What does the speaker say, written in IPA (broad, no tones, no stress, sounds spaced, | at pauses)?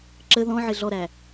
ǁ ə ð ɔ̃ ʕ ɪ ɮ ɔ ɾ æ